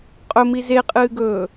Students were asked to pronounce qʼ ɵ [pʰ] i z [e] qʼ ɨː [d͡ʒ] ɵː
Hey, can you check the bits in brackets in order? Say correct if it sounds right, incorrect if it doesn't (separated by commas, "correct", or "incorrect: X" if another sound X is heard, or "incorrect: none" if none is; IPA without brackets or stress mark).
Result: incorrect: m, correct, incorrect: ɡ